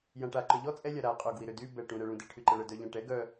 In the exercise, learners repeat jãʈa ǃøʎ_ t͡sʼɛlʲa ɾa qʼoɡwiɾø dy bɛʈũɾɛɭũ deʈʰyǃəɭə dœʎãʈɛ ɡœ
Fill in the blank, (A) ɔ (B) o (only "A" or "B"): A